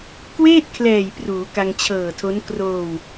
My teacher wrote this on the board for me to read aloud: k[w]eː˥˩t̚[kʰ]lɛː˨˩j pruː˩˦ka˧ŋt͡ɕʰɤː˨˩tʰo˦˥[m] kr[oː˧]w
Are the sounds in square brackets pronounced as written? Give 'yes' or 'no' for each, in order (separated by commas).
yes, yes, no, yes